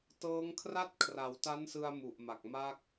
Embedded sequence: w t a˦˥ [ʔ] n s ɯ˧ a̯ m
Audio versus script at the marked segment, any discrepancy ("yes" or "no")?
yes